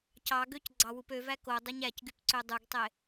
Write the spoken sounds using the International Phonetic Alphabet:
cɑɡøc ɡ͡ǀɑwupøvæ ko dˤeɲæcɡyp ǀødˤuɡtˤe

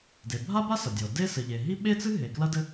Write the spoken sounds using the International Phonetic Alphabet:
de˩bʱa˥ba˥ sɐ˩dʲɔ˩ de˥ sɘ˩ʎe˩ ɦi˥ ɓe˥t͡sɨ˥ ɦe˩klɐ˥dɘ˥

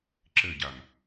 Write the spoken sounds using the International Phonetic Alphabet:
ǁɘɟam

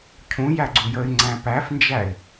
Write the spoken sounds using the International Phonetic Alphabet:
cʰũ jæɡ͡ǀujəɪ̯ŋ͡ǀæ̃ pæfnd͡ʒæɪ̯

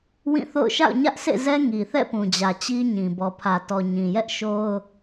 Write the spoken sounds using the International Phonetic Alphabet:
wĩ˦˨θo̰˦˨ʊ̯ ʃa̰˦˨ʊ̯ɲä˦ʔsḛ˦˨zɛ˦ ŋi˨θɛ̰˦˨pũ˨d͡ʑä˨ t͡ɕi˦ɲĩ˨ bɔ˨pʰä˨tɔ˨ ɲĩ˨jɛ˦ʔ ʃo˦ʊ̯

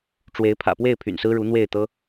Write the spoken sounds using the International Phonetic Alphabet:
ʈ͡ʂwe˧˥ɪ̯ pʰä̰˨˩pwe˥˩ɪ̯ pʰy̰˨˩nsɹ̩˥ɻu˧˥ n̪we˥˩ɪ̯t̪ɤ˥

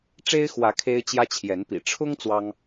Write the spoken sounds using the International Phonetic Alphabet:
ʈ͡ʂe˦ɪ̯xwä˨˦ kʰe˦ɪ̯t͡ɕjä˦t͡ɕʰjɛ˨˦npḭ˨˩ ʈ͡ʂʰʊ˦ŋ t͡swɑ˦ŋ

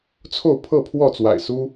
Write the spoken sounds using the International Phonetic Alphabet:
t͡sʰo˥˨ʊ̯ pʰɤ˥˨pʰwɔ˥˨t͡swa̰˨˩ɪ̯ su˦

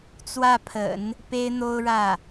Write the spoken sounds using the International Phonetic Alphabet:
t͡swä˥˩pʰə̰˨˩˦n | pe˥ɪ̯n̪o˥ʊ̯ɻä˥˩

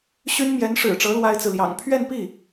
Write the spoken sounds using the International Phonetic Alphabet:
ɕy˥nmjɛ˧˥nʂɻ̩˨˩ʈ͡ʂɤ˧˥ lwa˥ɪ̯t͡sɹ̩˨ljɑ̰˨˩ŋ pʰɥɛ˥˧npi˥˩

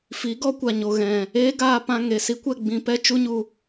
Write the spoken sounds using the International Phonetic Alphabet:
fi˨˦ɡɔ˦kʷa˨ ɲo˨ɣɛ̃˨ | eː˦ɡaː˧pã˧ ŋe˨ si˦kʷɛ˦˨ ɡ͡bĩ˧pɛ˦ t͡ʃu˦ɲu˧

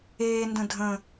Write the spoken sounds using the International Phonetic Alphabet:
eːndə̃ dʱə̃

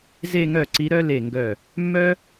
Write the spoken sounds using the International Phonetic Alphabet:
ze˥˧ŋœ˥˩ǀi˧˥ɾœ˥ le˥˩ŋɡœ˥˩ | mːœ˥

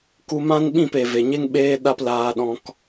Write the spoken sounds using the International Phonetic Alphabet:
ku˧mã˦nɓĩ˦˨p e˨ve˨ɲe˦ŋ ɓeː˦ɗa˦plaː˧ɗɔ̃˧k

